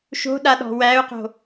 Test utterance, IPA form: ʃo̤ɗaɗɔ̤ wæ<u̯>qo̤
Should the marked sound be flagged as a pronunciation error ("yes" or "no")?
no